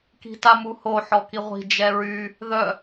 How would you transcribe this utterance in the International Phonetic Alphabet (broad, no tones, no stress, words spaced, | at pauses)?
ki̤tamuho ħɔkiʁʷi̤ d͡ʒɛɹy | ðœ